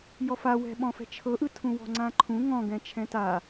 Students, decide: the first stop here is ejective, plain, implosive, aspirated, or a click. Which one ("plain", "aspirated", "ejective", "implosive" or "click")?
implosive